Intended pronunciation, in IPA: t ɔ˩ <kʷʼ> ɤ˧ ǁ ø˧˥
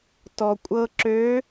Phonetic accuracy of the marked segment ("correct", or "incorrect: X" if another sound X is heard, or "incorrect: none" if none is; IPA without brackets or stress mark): correct